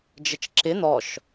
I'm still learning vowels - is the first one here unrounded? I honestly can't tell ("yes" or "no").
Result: yes